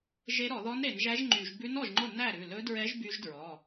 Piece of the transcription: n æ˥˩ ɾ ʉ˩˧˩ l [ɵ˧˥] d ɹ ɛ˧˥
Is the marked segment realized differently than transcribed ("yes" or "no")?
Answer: no